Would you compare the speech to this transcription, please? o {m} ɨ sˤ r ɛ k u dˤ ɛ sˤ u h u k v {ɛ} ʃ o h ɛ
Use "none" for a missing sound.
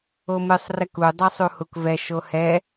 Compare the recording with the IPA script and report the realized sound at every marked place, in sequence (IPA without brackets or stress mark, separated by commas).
m, ɛ